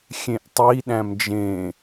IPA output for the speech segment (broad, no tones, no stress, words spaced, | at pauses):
xʲẽʔtˤi ɗæ̃md͡ʒẽ